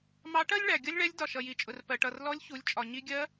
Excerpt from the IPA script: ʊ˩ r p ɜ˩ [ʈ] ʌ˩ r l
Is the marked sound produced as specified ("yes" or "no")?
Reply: yes